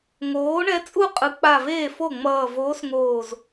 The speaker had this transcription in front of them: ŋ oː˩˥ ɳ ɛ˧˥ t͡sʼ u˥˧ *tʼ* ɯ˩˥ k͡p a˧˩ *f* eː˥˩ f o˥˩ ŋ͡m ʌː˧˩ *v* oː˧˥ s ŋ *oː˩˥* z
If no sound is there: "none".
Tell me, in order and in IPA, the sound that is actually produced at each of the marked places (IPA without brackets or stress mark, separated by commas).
qʼ, v, v, oː˧˩